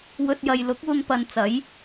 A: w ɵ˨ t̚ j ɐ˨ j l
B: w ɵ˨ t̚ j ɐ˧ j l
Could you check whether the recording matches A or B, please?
A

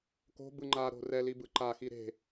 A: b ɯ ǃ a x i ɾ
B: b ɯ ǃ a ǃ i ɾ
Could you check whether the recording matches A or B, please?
A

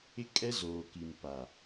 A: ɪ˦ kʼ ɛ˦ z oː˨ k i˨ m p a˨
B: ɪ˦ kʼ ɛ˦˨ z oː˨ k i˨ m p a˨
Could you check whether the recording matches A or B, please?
A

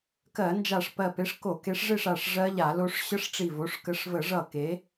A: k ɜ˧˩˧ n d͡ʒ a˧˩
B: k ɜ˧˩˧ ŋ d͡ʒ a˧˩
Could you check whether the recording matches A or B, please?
A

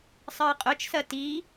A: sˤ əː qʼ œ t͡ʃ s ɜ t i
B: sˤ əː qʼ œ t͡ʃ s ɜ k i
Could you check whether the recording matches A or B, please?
A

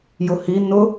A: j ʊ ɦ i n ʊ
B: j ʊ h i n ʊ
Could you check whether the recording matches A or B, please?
B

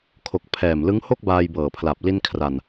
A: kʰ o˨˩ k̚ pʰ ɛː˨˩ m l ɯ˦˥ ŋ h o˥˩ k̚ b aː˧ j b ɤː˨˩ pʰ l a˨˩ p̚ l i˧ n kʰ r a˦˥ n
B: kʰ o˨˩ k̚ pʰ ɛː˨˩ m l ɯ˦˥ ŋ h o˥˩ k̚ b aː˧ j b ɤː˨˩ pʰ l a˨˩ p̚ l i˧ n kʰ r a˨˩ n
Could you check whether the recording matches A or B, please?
B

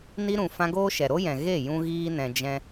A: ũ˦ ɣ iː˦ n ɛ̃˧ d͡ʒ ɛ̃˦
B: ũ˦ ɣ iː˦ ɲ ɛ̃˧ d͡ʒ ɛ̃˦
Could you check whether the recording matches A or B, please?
A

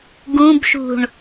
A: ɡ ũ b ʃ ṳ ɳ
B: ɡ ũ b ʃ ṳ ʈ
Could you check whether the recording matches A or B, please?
A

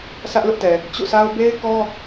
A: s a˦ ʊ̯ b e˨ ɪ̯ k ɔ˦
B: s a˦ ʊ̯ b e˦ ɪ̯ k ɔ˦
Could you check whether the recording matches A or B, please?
B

